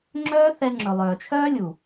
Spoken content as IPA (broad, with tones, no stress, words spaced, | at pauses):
ŋ͡ǁœː˦θɛ˧ ŋ͡ǁɵ˨lˠœː˨t͡ʃʰœː˦ lʲu˨